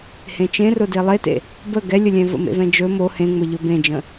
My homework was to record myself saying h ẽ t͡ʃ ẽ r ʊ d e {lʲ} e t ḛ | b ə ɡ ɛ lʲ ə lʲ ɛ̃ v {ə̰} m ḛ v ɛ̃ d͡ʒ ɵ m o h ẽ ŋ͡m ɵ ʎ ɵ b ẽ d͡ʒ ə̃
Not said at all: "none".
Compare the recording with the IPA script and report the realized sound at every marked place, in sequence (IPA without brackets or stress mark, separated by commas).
lˠ, ə̰